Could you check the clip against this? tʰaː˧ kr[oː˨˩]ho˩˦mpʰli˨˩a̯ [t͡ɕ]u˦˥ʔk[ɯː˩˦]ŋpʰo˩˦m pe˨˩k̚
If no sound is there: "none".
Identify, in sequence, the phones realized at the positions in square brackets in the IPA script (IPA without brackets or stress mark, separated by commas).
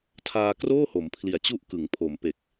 oː˥˩, t͡ɕ, ɯ˩˦